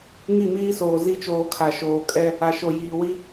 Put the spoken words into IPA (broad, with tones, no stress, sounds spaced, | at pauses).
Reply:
ŋ i˦˨ m iː˦ s oː˨ z i˦ t͡ʃ oː˨ kʰ a˨ ʃ oː˨ kʼ ɛ˦ | a˨ ʃ o˨ j iː˨ w i˦